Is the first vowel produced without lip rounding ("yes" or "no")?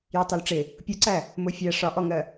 yes